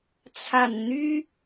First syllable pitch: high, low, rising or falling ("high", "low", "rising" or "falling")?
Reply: low